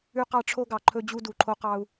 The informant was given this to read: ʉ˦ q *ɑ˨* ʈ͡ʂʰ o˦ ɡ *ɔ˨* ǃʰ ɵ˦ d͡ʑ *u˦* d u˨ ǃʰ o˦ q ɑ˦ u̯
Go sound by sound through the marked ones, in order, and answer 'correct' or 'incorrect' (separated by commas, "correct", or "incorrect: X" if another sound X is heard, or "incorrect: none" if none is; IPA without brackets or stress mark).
incorrect: ɑ˦, incorrect: ɑ˨, correct